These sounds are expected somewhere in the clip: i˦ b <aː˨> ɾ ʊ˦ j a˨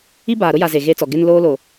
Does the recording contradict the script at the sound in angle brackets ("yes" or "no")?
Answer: no